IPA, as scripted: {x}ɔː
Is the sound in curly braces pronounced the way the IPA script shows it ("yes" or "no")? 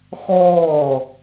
yes